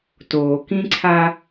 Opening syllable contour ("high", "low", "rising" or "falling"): low